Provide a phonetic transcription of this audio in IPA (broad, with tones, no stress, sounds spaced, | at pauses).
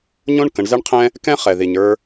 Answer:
ɲ õ˥ ɳ k ə̃˩˧ ɳ z ɛ˥ ɳ qʰ ɛ̃˥ | k ɛ̃˥ χ ɛ˩ ð i˩ ɲ ə˞˧